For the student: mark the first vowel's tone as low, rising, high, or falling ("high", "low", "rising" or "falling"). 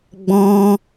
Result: high